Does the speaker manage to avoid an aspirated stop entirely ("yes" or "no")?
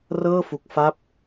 yes